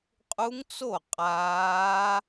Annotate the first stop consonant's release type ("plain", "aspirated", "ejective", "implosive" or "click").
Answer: ejective